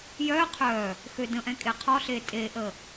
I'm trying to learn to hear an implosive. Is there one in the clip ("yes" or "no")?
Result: no